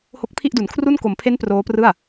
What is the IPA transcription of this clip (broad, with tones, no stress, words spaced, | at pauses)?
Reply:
ho˦˥k̚pʰi˥˩ʔdu˩˦n kʰru˥˩n ko˩˦mpʰe˦˥n proː˦˥prɯ˥˩a̯